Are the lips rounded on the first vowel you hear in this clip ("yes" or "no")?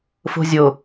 yes